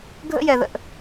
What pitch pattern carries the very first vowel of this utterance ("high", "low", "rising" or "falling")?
high